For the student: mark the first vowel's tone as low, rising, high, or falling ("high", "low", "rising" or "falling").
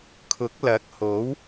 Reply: rising